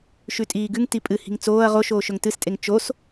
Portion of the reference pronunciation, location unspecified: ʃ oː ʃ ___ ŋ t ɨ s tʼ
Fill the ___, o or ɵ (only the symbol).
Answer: ɵ